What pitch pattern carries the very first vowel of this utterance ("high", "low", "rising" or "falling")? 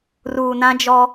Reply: low